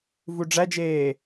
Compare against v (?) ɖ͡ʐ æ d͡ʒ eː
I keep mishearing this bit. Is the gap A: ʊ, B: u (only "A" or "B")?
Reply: B